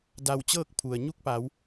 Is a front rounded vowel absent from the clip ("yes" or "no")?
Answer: yes